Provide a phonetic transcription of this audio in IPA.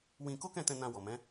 w ĩ˧ k o˦ k ɛ̃˦˨ t ɛ̃˧ n ã˧ w ɔ˨ m ɛ̃˨˦

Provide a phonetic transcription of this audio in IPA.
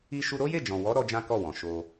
i˦ ʃ u˧ ɾ o˦ j e˦˨ d͡ʒ ɔ̃˨ w ɔ˨˦ ɾ ɔ˦ d͡ʒ ã˦ k ɔ˦˨ w ɔ̃˨ ʃ o˧

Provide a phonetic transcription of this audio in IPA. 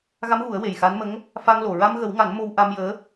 ɣ a˧˥ m ɣ u˨˩˦ ə̯ w e˨˩ j x a˧˥ n m ə˧˥ ŋ | f a˧ ŋ l o˨˩ ɹ a˧ m ɣ ə˨˩˦ w ŋ a˨˩˦ n m o˧ w ʔ a˧ m j əː˧˥

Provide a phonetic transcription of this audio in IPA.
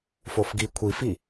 f o f ɡ i kʷʰ i f i

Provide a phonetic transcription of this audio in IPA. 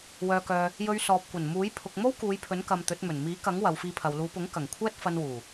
w œː˨ k œː˨ | j ɵ˧ ɥ s ɔː˨ p̚ kʷ ɐ˨˩ n m uː˨˥ j pʰ ʊ˨ k̚ m o˥ w k uː˨˧ j pʰ ɵ˨˥ n k ɐ˨ m t̪ ɵ˨˥ t̚ m ɵ˨˩ n m iː˨˥ k ɐ˨˥ ŋ w ɐ˨˧ w f iː˧ pʰ ɐ˨ w l uː˨˧ p ʊ˨˥ ŋ k ɐ˨˩ ŋ kʷʰ ɛː˥ t̚ f ɐ˧ n w uː˨˩

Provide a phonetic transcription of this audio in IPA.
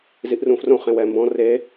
z i ʔ r ũ f r õ χ ẽ w ɛ m b ɔ̃ r e

